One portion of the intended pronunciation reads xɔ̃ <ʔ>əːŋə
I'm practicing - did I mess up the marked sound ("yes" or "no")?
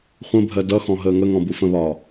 yes